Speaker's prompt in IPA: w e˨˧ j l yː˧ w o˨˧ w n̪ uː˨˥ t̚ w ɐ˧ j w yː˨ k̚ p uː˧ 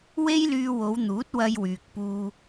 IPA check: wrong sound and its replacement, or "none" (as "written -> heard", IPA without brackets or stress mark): e˨˧ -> e˥